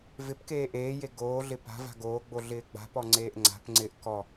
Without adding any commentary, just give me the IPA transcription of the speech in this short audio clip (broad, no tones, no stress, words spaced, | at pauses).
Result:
vɪpkeː ʔeːje ɡoːɮɪ pa̤va̤ ɡoːɡ͡bo ɮɪːɡ͡ba̤pɔ ŋ͡ǀeːʔŋ͡ǀa̤pŋ͡ǀɪːʔ kɔ